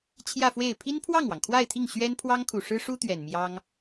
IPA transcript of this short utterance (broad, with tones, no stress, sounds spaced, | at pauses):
t͡ɕʰ j ä˥˧ f w e˥˩ ɪ̯ pʰ i˥ n pʰ w ɑ˥˩ ŋ w ɑ˩ ŋ kʰ w a˥˧ ɪ̯ t̪ʰ i˥˩ ŋ ɕ ɥ ɛ˥ n pʰ w ɑ˥ ŋ kʰ u˨˩ ʂ ɻ̩˥ ʂ u˥ t̪ ɥ ɛ˨˩ n m j ɑ˥ ŋ